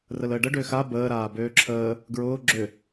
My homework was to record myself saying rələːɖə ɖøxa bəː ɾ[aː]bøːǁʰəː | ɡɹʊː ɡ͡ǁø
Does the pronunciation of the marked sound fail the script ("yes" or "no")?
no